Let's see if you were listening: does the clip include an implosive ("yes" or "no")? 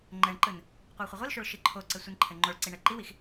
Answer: no